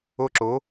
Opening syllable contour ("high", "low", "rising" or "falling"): high